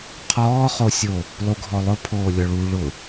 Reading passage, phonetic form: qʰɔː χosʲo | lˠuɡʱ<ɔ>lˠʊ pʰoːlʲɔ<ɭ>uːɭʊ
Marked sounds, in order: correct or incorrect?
correct, correct

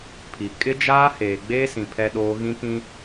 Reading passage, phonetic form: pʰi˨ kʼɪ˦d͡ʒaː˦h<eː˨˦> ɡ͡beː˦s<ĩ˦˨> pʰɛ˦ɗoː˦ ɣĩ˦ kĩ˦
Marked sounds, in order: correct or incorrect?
incorrect: eː˨, incorrect: ĩ˨

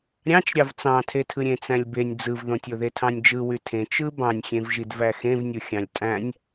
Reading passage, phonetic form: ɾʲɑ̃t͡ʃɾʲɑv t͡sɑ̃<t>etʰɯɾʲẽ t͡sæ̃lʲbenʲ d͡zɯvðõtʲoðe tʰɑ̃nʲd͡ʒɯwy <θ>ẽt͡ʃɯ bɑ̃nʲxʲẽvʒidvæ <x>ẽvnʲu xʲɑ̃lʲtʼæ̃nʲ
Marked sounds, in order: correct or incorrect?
incorrect: tʰ, incorrect: tʰ, correct

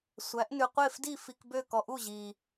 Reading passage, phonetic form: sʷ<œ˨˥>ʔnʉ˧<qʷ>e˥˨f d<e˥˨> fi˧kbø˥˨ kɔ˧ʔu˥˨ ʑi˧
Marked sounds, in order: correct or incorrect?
incorrect: æ˨˥, correct, incorrect: i˥˨

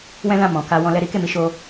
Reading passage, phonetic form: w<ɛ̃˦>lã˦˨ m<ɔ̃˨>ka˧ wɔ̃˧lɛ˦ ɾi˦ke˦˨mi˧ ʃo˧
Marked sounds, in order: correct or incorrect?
correct, correct

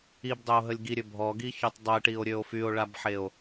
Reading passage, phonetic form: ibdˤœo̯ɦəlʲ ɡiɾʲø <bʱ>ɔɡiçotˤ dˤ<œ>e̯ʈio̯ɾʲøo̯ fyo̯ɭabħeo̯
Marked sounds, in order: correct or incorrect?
correct, correct

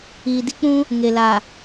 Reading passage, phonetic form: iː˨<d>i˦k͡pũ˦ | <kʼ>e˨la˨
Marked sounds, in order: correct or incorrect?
correct, incorrect: ŋ

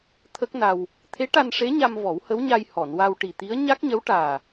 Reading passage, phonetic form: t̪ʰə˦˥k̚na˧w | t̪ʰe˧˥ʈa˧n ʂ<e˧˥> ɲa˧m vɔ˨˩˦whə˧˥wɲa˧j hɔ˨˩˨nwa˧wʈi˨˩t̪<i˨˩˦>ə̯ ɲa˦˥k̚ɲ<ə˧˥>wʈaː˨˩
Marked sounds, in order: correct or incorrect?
correct, incorrect: i˧˥, correct

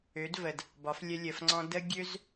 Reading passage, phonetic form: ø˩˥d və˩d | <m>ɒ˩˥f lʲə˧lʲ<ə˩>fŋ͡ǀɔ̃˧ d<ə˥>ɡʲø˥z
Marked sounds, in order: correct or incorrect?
incorrect: b, correct, correct

